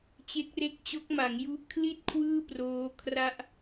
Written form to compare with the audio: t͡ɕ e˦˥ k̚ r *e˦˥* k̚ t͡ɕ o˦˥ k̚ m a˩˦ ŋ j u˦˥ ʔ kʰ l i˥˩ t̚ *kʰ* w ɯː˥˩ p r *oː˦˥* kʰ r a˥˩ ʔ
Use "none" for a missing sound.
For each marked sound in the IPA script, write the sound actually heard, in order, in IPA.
e˦˥, kʰ, oː˦˥

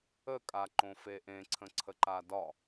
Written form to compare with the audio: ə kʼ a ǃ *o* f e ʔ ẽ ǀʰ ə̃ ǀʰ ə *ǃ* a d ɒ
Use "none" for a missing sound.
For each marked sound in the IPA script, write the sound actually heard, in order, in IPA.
õ, ǃ

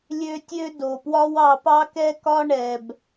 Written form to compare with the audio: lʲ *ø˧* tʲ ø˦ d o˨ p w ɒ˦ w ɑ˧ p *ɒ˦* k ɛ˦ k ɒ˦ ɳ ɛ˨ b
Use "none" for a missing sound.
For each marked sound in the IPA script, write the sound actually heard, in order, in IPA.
ø˦, ɑ˦

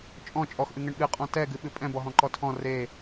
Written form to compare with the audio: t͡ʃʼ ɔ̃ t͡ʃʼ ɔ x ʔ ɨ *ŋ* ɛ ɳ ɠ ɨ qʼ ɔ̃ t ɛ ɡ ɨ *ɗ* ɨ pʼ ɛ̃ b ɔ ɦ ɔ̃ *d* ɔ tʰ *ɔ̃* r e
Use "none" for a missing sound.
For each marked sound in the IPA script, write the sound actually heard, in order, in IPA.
ŋ, ɓ, ǃ, ɔ̃

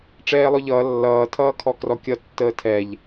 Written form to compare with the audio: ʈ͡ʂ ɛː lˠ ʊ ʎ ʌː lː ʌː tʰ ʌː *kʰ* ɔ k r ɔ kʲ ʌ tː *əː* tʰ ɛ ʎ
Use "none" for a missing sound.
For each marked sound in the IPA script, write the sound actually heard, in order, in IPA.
kʰ, əː

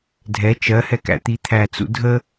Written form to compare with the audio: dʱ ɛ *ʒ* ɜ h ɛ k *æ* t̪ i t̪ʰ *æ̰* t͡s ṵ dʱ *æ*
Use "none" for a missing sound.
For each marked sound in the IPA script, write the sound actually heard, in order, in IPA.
t͡ʃ, æ̰, æ, ə

